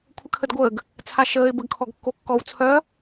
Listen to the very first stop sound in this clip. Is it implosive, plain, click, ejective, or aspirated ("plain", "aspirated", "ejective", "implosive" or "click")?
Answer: aspirated